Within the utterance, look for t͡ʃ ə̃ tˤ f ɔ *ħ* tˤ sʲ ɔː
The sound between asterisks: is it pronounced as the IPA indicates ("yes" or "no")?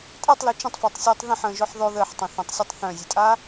no